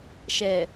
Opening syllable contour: low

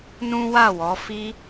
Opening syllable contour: high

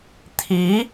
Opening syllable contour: rising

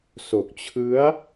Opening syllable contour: low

